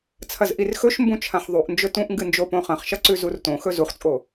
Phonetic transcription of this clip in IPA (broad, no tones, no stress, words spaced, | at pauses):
t͡sʰɐzʔirxɵʃmbũ t͡ʃʰãħðˤuʔnd͡ʒɵ tũʔŋɡɨ nd͡ʒopõχɐ̃χʃɐ ǀʉzurtõxɵ zuχt͡sʼo